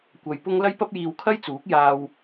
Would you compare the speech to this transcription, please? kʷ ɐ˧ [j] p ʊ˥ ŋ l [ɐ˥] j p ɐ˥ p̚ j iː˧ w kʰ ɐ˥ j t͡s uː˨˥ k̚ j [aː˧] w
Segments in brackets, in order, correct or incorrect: correct, correct, correct

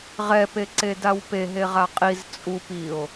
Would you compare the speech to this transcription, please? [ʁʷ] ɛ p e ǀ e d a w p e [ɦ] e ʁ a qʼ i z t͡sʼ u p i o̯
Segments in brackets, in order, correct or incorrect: incorrect, correct

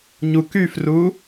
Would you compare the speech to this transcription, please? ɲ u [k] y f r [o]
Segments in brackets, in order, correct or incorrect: correct, incorrect

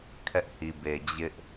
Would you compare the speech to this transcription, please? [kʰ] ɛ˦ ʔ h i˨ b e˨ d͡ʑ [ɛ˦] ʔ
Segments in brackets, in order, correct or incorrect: correct, incorrect

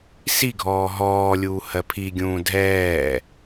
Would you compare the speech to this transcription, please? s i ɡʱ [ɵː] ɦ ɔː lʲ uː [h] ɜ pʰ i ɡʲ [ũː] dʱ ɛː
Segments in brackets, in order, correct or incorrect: incorrect, correct, correct

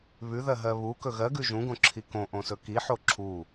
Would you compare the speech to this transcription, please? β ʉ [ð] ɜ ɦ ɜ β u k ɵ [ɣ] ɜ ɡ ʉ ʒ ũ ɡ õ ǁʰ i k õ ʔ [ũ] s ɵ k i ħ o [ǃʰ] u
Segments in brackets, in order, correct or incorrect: correct, correct, incorrect, incorrect

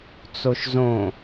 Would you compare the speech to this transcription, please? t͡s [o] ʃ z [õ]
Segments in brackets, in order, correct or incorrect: correct, correct

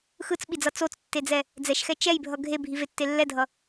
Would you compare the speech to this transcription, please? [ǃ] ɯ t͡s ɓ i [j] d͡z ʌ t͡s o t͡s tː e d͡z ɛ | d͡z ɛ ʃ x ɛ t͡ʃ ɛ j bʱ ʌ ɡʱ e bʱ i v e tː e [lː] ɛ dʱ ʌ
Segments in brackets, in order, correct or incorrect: incorrect, incorrect, correct

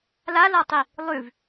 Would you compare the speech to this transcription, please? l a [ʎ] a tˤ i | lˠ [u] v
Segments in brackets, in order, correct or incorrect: incorrect, incorrect

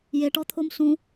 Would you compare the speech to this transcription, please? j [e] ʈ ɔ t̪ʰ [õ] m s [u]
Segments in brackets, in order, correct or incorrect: correct, incorrect, incorrect

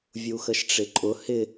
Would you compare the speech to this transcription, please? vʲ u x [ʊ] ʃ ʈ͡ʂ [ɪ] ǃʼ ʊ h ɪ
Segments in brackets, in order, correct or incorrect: incorrect, correct

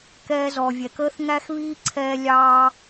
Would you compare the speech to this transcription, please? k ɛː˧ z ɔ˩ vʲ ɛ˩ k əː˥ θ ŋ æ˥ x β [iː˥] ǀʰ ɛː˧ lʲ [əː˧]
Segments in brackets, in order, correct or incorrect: correct, incorrect

